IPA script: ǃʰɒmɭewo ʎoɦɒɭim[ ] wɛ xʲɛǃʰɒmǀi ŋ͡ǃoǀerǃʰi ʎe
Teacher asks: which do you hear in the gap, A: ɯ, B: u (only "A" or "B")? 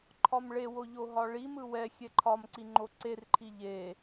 A